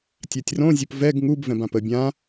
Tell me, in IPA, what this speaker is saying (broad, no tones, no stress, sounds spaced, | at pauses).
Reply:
tʲ a tʲ r õ zʲ o p v ɛ ɡ ŋ u b v ɛ̃ b ã p ə bʲ ã